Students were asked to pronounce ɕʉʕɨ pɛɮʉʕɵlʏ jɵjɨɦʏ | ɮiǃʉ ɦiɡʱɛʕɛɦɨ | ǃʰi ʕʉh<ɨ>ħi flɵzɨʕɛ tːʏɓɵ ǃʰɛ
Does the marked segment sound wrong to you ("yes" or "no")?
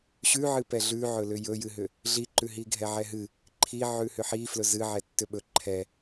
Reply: yes